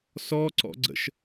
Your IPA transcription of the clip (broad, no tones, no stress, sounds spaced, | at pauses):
s ɔ ǀ ɔ̰ ɡ͡ǀ ə̰ ʃ